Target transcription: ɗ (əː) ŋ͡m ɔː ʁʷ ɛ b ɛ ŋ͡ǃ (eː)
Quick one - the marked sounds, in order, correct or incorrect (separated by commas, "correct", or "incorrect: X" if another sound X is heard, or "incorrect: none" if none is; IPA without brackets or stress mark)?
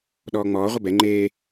incorrect: ɔː, correct